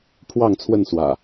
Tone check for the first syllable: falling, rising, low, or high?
falling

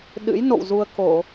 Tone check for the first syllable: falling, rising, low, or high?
rising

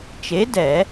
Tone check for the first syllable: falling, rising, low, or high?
rising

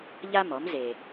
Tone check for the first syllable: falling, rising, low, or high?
high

